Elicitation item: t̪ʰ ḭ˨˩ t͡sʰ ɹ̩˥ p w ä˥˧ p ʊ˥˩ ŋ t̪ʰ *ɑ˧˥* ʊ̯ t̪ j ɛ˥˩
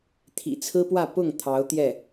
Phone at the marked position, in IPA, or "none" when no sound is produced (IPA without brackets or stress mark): ɑ˧˥